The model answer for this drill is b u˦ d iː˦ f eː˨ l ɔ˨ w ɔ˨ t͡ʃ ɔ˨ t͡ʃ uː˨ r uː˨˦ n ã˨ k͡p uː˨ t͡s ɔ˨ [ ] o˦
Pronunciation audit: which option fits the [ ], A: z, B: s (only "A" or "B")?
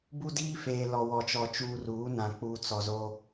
A